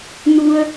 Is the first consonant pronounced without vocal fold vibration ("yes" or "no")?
no